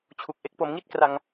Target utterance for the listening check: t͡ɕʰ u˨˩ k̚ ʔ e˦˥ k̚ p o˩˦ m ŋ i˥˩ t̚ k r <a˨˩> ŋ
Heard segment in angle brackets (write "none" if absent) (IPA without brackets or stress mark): a˧